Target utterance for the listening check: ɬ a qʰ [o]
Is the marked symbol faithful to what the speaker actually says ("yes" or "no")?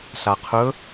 no